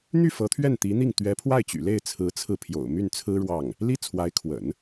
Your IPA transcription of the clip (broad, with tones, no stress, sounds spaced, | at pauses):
n̪ y˥˩ f ɤ˧˥ t̪ʰ ɥ ɛ˥˩ n t̪ i˧˥ n̪ i˥˩ ŋ t̪ ɥ ɛ˧˥ pʰ w a˥˩ ɪ̯ t͡ɕ y̰˨˩ l e˥˩ ɪ̯ t͡sʰ ɹ̩˧˥ t͡sʰ ɹ̩˧ pʰ j o̰˨˩ ʊ̯ m y˥˩ n t͡sʰ ɹ̩˥ ɻ w ɑ˥˩ ŋ | l i˥ t͡sʰ w a˧˥ ɪ̯ kʰ w ə̰˨˩˦ n